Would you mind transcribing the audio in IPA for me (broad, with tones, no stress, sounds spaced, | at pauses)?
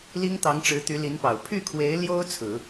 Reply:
l i˥ ŋ t̪ ɑ˧˥ ŋ ʈ͡ʂ ɻ̩˧˥ t̪ y˧˥ l i˧˥ n p ɑ˨˩ ʊ̯ pʰ y˥˩ kʰ w e˧˥ ɪ̯ l j o˥ ʊ̯ t͡sʰ ɹ̩˨˩˦